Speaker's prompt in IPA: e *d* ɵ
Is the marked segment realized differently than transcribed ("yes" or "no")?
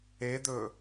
no